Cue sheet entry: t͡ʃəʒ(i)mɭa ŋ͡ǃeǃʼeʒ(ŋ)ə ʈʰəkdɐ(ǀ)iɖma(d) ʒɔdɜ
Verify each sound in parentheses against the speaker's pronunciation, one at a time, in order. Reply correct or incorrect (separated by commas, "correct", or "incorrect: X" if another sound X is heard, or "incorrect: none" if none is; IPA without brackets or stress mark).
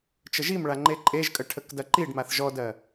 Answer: correct, incorrect: kʼ, incorrect: ǃ, incorrect: θ